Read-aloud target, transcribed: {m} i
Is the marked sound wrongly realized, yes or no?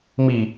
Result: no